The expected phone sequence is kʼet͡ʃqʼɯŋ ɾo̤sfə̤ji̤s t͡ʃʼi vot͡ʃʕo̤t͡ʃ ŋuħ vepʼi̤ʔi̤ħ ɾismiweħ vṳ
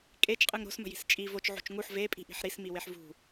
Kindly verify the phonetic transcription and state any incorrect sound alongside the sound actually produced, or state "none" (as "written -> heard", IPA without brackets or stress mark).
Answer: f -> m